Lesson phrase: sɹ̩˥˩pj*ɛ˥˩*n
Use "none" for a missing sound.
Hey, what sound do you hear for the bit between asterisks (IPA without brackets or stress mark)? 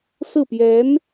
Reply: ɛ˧˥